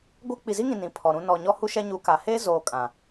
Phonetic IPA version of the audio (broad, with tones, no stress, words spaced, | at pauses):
ɡʷa˦ k͡pi˨zi˦ŋĩ˨ nĩ˨pʰɔ˨ɾũ˦ nɔ˨ɲɔ˦hu˦ ʃɛ˦ɲu˨˦ ka˨ heː˦zoː˨ kʼã˨